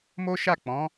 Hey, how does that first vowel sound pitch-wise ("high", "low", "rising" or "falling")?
high